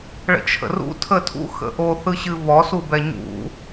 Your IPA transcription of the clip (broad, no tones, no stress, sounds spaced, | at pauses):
ɭ ə̰ t͡ʃʰ ə̰ r ṵ tʰ ə tʰ ṵ x ə̰ ʔ o θ ɯ ɕ ɨ β ɔ s u b ɛ ɲ ṵ